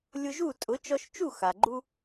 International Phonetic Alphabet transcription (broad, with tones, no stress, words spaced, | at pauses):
lʲʊ˧ʒu˥˩tʼʊ˩˥ t͡ʃɔ˧ʃt͡ʃu˥˩ xa˩ɡ͡ǃu˧